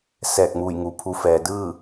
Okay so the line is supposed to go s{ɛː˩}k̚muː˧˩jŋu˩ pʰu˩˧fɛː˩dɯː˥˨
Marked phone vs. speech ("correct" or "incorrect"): incorrect